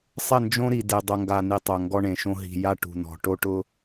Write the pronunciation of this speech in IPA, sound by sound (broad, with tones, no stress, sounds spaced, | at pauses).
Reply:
sˤ ɪ˦˨ n d͡ʒ õ˦ ɾ i˨ d e˨ dˤ o˨ ŋ ɡ a˨ n i˨ tˤ o˨ ŋ ɡ ɔ˦ ɳ ẽ˨ ʃ õ˦ ɦ i̤˨ j a˦ ʈ ṳ˨ n ɔ̤˨ ʈ o˦ ʈ ʊ˦